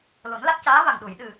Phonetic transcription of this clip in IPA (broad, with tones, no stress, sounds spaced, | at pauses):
l o˨˩˦ n l a˦˥ t̚ c aː˧˥ v a˨˩ ŋ ɗ u˨˩˨ j ɗ ɨ˨˩